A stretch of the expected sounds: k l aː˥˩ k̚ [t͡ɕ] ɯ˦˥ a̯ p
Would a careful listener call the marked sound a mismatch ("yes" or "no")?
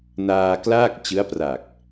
no